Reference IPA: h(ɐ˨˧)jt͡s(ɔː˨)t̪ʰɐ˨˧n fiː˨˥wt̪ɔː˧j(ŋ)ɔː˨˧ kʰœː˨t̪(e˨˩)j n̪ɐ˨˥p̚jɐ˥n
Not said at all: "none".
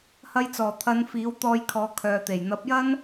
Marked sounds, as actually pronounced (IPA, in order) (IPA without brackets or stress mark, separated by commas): ɐ˧, ɔː˨˩, kʰ, e˨˩